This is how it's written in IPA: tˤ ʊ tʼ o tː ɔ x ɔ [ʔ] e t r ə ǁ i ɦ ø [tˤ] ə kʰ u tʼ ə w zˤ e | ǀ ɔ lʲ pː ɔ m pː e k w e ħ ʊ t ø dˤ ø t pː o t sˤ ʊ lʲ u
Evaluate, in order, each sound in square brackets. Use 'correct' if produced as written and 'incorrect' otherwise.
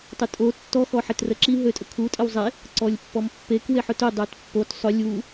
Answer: incorrect, incorrect

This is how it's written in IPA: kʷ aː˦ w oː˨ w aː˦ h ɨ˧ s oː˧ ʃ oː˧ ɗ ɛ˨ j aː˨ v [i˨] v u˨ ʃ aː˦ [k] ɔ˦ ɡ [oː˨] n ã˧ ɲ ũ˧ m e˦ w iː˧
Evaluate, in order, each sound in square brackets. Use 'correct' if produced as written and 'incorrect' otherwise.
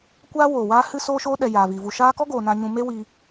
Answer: correct, correct, correct

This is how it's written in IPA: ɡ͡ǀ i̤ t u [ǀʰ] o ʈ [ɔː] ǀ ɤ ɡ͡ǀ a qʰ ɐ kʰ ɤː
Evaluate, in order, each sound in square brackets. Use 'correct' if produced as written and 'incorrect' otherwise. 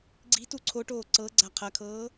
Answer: correct, incorrect

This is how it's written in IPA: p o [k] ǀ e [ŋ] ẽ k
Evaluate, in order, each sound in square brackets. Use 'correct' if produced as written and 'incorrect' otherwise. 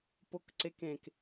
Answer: correct, incorrect

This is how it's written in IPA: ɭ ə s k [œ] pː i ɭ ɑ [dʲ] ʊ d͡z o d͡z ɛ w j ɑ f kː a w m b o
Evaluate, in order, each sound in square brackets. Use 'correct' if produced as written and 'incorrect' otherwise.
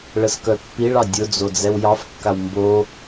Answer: correct, correct

